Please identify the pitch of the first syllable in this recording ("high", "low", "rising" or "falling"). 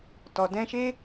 low